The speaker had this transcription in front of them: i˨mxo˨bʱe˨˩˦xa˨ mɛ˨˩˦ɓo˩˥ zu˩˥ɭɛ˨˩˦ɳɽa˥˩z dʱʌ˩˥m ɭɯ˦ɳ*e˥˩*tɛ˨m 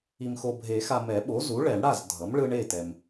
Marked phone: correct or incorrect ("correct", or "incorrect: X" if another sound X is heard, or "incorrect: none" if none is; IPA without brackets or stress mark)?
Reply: correct